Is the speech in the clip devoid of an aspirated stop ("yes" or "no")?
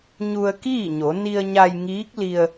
yes